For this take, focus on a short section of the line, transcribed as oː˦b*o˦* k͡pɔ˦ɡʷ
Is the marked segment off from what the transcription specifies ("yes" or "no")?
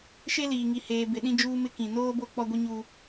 no